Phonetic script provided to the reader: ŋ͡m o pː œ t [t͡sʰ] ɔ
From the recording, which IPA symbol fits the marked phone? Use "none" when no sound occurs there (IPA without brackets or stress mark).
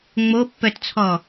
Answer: t͡sʰ